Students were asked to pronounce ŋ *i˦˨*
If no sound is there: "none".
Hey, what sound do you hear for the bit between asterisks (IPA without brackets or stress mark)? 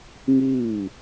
iː˦˨